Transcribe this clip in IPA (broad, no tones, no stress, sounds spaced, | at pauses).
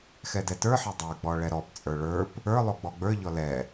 x ɛ d ɛ t ə˞ ħ ɛ dˤ ə˞ ɡ͡b ɔ ɭ ɛ ɾ ɔ p t͡sʼ ə˞ ɭ ə˞ p | ə˞ lˠ o ɡ͡b ɔ ɡ͡b ə˞ ʎ ɔ l ɛ